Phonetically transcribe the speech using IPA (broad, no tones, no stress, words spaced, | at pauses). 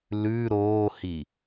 lʉ ɾoːhi